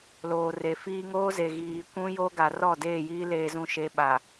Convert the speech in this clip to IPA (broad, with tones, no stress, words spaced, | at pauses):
loː˨re˨fiː˦ ŋoː˦ze˨ ɣiː˨kʷũ˦jo˦ɡa˨ rɔ˦˨deː˦˨jiː˦ leː˨zũ˨ʃe˨ ɓa˨